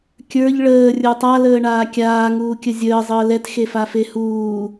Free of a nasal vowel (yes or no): yes